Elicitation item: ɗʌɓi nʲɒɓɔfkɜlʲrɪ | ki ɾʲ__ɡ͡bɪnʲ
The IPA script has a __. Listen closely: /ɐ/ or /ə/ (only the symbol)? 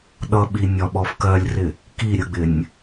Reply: ə